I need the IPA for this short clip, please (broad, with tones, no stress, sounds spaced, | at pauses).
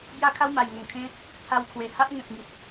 b j a˦ kʰ a˦ w m a˨˩ j ŋ o˨˩ ŋ kʰ ẽ˦ | t͡sʰ a˧ w kʰ w e˨˩ h a˦ ʔ ŋ ẽ˨ p̚ ŋ i˨ t̚